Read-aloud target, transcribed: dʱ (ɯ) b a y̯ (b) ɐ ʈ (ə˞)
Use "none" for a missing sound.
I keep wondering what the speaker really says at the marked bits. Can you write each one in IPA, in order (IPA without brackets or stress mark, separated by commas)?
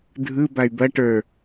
ɯ, b, ə˞